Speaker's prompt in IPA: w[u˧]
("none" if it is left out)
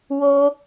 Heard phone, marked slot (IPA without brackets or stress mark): o˧